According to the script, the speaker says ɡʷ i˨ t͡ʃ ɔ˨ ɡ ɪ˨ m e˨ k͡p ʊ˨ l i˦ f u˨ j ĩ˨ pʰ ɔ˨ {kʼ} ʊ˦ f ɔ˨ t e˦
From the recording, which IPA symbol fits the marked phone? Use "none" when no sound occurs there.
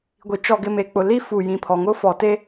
ŋ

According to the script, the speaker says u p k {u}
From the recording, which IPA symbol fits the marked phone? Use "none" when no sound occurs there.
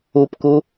u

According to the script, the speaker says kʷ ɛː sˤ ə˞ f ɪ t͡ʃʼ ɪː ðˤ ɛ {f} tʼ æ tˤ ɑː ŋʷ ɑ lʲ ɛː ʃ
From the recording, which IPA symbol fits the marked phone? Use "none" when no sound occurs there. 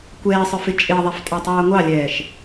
f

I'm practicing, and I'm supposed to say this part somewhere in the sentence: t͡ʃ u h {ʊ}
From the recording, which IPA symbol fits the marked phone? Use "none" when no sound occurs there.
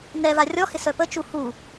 u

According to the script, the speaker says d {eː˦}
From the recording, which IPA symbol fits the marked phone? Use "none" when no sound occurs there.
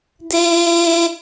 eː˦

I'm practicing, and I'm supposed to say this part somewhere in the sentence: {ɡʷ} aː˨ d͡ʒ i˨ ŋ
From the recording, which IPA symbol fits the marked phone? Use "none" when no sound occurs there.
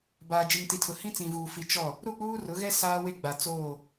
b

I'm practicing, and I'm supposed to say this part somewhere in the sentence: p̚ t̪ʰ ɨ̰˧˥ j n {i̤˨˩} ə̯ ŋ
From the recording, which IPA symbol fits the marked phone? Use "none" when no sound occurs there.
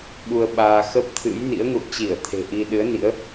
ḭ˧˥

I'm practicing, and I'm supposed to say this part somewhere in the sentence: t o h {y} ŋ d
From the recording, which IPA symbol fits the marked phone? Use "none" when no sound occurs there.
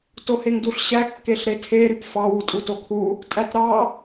e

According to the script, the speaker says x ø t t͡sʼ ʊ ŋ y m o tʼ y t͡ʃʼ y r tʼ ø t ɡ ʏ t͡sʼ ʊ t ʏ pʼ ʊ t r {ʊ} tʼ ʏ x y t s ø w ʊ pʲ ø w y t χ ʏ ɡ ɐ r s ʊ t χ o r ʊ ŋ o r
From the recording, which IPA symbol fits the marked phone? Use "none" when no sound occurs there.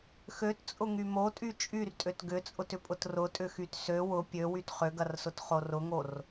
ʊ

